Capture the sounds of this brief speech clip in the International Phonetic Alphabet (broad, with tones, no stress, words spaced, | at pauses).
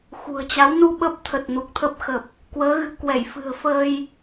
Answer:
xṳ˨˩ə̯t͡ɕa˨˦wnu˧ ɓə˦˥p̚t̪ʰə˨˩t̚ nu˨˩k̚t̪ʰə˦˥p̚xə˨˩p̚ | kwəː˨˦ɣɨ̤˨˩kwɛ˧˩j fɨ̤˨˩ə̯fəː˧j